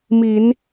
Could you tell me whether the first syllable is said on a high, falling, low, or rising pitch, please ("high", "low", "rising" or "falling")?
low